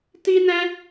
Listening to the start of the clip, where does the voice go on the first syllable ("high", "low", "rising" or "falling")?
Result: high